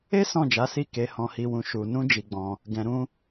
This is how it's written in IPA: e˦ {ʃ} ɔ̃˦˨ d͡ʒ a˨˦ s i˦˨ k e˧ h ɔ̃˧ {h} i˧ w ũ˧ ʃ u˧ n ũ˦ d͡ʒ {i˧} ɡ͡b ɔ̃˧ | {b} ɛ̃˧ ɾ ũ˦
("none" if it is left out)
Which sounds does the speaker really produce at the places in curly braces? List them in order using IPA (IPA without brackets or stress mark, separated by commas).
s, h, i˧, ɡ